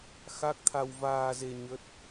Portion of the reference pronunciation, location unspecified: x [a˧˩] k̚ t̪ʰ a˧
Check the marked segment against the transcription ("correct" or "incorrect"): incorrect